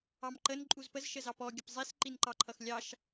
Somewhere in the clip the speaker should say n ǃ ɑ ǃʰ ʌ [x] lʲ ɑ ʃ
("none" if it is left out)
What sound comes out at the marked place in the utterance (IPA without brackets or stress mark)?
x